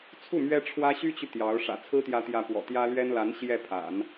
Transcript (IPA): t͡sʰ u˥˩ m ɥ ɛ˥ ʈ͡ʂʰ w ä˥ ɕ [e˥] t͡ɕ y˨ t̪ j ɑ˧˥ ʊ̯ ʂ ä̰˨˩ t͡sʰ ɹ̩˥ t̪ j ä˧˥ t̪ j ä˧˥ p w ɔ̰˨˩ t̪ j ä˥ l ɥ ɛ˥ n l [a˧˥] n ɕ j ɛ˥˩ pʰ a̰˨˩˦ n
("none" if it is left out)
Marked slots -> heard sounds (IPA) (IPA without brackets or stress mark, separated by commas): y˥, a˧˥